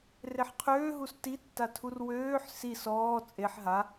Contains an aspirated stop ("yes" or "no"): yes